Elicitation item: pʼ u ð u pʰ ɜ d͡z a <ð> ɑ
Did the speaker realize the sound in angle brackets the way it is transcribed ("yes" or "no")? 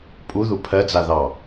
yes